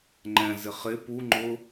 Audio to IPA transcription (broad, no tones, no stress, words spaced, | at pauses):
ŋ͡ǃɛ̃ zɪχɪ pu ŋ͡ǃʊ